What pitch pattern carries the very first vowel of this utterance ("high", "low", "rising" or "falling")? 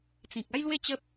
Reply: low